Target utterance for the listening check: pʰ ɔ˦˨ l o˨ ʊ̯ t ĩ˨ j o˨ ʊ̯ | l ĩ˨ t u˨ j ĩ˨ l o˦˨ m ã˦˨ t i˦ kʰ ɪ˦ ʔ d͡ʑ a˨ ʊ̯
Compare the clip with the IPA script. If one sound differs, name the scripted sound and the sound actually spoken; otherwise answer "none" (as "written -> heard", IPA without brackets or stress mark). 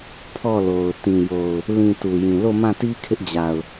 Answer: none